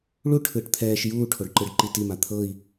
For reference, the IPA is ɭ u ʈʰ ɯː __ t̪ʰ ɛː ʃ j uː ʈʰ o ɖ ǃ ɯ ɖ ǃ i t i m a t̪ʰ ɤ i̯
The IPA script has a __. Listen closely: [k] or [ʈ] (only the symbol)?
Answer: ʈ